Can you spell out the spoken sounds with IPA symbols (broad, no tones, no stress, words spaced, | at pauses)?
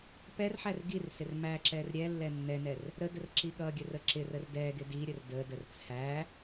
pɛrħær ɡirsɪr mæǁɛr ɾʲɛlːɛ nːɛnɛr | ɾədər ǁiɠʌɡʲə rəǁɪrər dɛɡɪ diɾʲər dədər t͡sʰæ